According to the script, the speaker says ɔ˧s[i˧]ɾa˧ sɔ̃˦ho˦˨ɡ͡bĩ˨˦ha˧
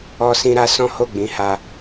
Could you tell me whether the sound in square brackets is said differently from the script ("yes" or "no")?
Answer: yes